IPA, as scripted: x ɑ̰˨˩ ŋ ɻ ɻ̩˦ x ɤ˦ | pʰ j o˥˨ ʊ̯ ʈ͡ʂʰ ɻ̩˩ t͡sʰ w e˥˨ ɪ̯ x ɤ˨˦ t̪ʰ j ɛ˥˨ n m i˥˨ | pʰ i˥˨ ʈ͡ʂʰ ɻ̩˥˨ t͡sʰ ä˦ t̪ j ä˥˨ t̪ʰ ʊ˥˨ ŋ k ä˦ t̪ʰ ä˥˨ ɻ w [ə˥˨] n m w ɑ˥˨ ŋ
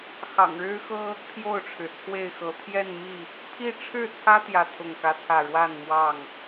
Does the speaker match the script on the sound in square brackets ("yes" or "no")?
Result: no